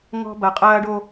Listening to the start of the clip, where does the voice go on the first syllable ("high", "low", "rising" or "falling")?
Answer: high